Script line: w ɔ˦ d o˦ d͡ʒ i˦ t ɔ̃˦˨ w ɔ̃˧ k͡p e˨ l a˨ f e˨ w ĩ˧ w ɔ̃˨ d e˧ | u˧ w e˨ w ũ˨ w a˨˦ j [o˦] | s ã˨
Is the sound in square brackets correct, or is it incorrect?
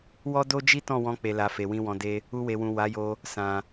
incorrect